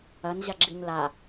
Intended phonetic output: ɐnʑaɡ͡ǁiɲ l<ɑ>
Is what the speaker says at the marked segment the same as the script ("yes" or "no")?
no